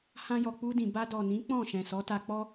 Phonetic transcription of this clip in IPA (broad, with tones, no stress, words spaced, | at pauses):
hã˧jɔ˨ k͡pu˧dĩ˨ ba˧dɔ˨nĩ˨˦ k͡pɔ̃˦˨ ʃɛ̃˨sɔ˨˦ta˧ k͡pɔ˦